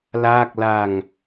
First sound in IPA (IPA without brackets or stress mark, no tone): l